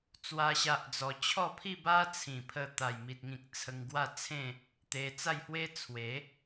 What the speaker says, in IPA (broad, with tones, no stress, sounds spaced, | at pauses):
t͡s w a˦ ɕ a˦ ʔ d͡z ɔ˧ t͡ɕʰ ɔ˥˧ pʰ i˥˧ b a˦ t͡sʰ ĩ˨˩ pʰ ə˧ t̪ a˨˩ j m i˨ t̚ ŋ ĩ˨ k̚ t͡sʰ ə˧ ŋ ɡ w a˥˧ t͡sʰ ẽ˥˧ | t̪ e˧ t͡s a˥˧ j h w e˦ t͡sʰ w e˨˦